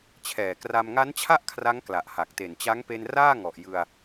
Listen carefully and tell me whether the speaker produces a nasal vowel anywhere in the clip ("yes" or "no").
no